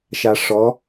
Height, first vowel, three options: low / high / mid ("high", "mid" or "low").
low